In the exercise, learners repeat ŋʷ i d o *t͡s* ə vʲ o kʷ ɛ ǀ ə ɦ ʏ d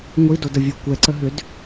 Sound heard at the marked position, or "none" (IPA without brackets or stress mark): d